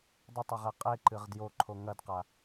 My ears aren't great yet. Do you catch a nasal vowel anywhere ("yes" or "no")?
no